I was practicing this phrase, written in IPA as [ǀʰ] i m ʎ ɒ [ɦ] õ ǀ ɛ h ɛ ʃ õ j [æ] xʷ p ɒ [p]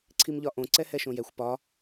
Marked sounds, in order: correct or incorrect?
correct, incorrect: ʔ, incorrect: ɛ, incorrect: none

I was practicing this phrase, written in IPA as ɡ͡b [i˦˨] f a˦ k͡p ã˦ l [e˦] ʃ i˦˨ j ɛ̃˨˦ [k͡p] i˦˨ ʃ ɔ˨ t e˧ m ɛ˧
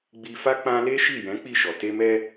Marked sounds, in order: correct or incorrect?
incorrect: i˧, correct, correct

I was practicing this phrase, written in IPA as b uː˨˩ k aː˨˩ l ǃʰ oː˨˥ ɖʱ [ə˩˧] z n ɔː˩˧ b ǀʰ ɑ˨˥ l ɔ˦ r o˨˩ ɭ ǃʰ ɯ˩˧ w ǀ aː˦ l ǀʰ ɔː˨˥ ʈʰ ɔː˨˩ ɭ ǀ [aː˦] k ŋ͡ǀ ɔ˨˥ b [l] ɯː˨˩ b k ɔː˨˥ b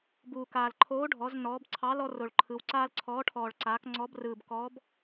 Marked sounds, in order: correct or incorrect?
incorrect: ɔ˩˧, incorrect: aː˩˧, incorrect: r

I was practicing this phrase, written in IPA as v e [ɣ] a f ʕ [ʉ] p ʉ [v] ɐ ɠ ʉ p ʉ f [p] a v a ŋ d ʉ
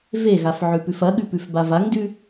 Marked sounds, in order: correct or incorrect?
correct, correct, incorrect: f, incorrect: b

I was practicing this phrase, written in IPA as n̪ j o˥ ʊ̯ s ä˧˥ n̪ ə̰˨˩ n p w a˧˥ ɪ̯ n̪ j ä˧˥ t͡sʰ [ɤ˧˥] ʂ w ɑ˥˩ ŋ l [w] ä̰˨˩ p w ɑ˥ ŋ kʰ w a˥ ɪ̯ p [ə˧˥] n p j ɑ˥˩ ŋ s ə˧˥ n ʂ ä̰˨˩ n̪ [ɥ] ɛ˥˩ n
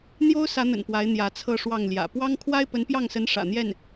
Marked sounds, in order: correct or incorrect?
incorrect: ɤ˥˧, incorrect: j, correct, incorrect: j

